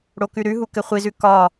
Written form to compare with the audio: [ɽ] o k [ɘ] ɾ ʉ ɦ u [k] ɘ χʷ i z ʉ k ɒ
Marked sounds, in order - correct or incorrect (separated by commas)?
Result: correct, incorrect, correct